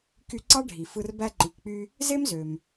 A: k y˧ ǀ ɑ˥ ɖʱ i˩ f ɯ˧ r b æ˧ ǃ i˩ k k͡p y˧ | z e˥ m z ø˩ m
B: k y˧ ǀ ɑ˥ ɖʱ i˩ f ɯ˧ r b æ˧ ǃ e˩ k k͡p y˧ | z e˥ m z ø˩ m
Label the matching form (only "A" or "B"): A